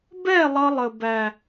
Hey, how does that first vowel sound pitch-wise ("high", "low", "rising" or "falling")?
falling